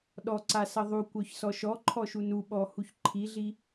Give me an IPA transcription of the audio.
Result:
ɗ ɔ ǀ a s ʌ ðˤ u kʷ œ ç s ɔ ʃ ɔ ǃʰ ɔ ʃ u n u ɓ ɔ h u ç ǃʰ i ɮ i

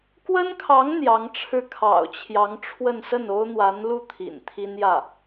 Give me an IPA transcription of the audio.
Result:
k w ə˥ n kʰ ɑ˧˥ ŋ n̪ j ɑ˧˥ ŋ ʈ͡ʂʰ ɻ̩˥˩ kʰ ɑ̰˨˩ ʊ̯ t͡ɕʰ j ɑ˧˥ ŋ ʈ͡ʂʰ w ə˥˧ n s ə˥˩ n o˥ ʊ̯ n̪ w a˧˥ n l u˥˩ t̪ʰ ḭ˨˩ n t̪ʰ i˥ n j ä˥˩

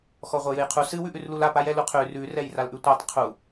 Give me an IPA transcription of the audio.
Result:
x ɔ ʁʷ ɛ j ɨ j qʰ u s ɨ w ʉ ʔ ʉ r l u l a p a j ɛ l u qʰ ʉ r ʉ r ɛ j r a l ʔ ʉ tʷ a tˤ qʰ u

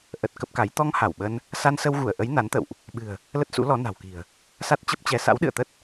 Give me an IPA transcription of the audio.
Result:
ʔ ə˨˩ t̚ k ə˦˥ p̚ k a˨˦ j t̪ ɔ˧ ŋ h a˧˩ w ɓ ə˧ n | s a˧ n s ə˧ w ɣ u˧˩ ə̯ ʔ ə˨˦ j n a˨˦ n t̪ ə̰˧˨ w ʔ | ɓ ɨ̤˨˩ ə̯ | l ə˦˥ t̚ s ṵ˧˥ l ɔ˨˦ n a̤˨˩ w k i̤˨˩ ə̯ | s a˦˥ t̚ t͡ɕ ə˦˥ p̚ t͡ɕ ɛ˧ s a̰˧˥ w ɗ ɨ̰˧˨ ə̯ t̪ ə˦˥ t̚

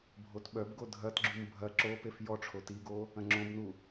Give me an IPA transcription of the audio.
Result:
bʱ o t ɓ œ b ɡ o dʱ ɐ t ɡ͡ǁ u m bʱ ɐ ǁ o p e f j ɔ ʈ͡ʂʰ o t i ɡ o | ɐ̃ ŋ͡ǁ õ b n u

